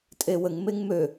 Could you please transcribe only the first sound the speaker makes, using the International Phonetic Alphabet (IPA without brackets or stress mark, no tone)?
tʼ